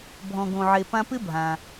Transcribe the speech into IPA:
bʱ ɔ̃˧ ɡ õ˧ ʕ e˧ p ã˥ p ɪ˥ bʱ ã˩

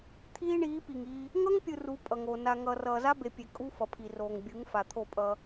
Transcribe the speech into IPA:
t̪ʰ iː˦ ɳ iː˨˦ p i˨ ŋ iː˦ | ŋ ʌ˦ ŋ pʲ ɯ˨ r u˨˦ pʼ ʌ˨ ŋ oː˨ n a˨ ŋ ʌː˨ r ʌː˨ z a˦ b e˨ pʲ e˨ kʼ u˦ f ʌ˨ pʰ i˨ r oː˨ ŋ bʲ ɯ˨˦ ŋ f a˨ t̪ʰ o˦˨ pʼ ʌː˦

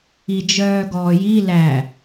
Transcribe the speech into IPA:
i d͡ʒ œː ɡ ɔː j i l æ

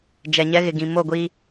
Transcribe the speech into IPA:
d͡ʒ ɛ˨ ɲ ɛ˦ ɣ ɪ˨ ɡ ĩ˨ m o˦˨ ɡʷ iː˦

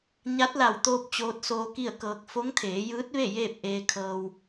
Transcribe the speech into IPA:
ɲ a˧˥ t̚ l a˧˩ w t̪ oː˧ p̚ t͡ɕ oː˧˥ t̚ s oː˧ k i˥˨ ə̯ k ɤː˧ k̚ f o˧˥ ŋ t̪ʰ eː˩˧ j ɯː˧˥ t̚ ʋ e˥˨ j eː˥˨ p̚ ʔ eː˧ kʰ ɤː˧ w

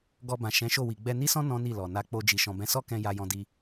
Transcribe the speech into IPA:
ɡ ɔ˧ b ã˨ ʃ ɛ̃˨˦ ʃ o˦˨ w i˨ ɡ͡b ɛ˧ n i˦ s ɔ̃˦ n ɔ̃˦ n i˦˨ l ɔ˨ n a˧ k͡p o˧ d͡ʒ i˨ ʃ ɔ̃˨ b ɛ̃˨˦ s ɔ˦ k ɛ̃˧ j a˧ j ɔ̃˧ d i˧

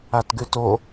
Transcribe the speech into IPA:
a t ɡ ʉ t o

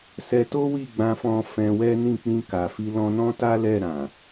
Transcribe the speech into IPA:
s ɛ˧ t o˦ w i˦˨ ɡ͡b ã˧ f ɔ̃˧ f ɛ̃˧ w ɛ˦ n ĩ˦˨ k͡p ĩ˧ k a˨ f i˧ l ɔ̃˧ n ɔ̃˦ t a˦ l ɛ˦˨ ɾ ã˨

